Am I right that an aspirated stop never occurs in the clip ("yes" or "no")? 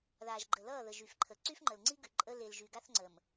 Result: no